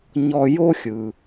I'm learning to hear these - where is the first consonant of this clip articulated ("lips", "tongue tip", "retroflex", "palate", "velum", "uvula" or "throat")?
palate